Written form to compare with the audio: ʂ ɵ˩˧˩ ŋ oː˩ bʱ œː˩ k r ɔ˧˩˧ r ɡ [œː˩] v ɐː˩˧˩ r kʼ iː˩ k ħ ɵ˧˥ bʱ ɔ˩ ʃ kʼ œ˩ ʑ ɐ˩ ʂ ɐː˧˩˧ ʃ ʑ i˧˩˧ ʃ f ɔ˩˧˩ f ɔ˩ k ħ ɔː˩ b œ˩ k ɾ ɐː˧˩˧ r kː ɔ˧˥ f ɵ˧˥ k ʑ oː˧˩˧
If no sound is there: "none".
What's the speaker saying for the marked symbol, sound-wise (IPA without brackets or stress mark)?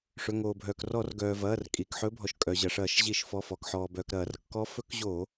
œː˩